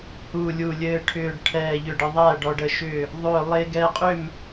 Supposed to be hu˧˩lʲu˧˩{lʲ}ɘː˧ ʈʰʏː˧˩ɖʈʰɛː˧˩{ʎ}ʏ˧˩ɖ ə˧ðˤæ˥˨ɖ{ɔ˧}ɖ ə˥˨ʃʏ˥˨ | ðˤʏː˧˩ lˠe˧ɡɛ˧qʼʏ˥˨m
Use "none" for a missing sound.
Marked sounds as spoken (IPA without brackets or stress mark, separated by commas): lʲ, ʎ, ɔ˧